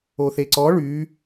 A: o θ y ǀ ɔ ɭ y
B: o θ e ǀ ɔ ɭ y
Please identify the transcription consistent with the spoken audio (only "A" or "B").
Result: B